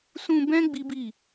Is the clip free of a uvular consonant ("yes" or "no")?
yes